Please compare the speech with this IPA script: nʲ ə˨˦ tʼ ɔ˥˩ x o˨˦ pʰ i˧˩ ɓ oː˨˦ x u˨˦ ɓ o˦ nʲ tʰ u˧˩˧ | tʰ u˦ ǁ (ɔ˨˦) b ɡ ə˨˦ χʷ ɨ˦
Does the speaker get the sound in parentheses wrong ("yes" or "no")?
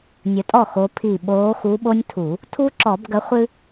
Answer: yes